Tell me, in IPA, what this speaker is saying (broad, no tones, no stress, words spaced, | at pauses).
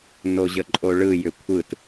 noʑəǃʼoɭɯ jʏkʷʰɯt